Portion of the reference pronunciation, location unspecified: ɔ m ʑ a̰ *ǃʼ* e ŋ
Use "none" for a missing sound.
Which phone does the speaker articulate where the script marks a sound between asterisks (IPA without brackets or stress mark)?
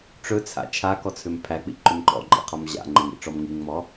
ŋ͡ǃ